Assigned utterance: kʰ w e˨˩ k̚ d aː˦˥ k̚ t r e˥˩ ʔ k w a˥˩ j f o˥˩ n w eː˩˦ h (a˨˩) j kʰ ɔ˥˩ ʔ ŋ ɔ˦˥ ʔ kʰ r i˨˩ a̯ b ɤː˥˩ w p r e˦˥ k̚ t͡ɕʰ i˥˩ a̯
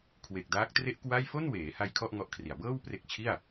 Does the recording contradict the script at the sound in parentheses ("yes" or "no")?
yes